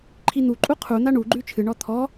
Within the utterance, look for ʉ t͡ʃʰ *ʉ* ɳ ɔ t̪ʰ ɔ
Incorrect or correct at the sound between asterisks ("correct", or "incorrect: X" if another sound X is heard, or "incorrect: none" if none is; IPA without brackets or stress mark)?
incorrect: ɨ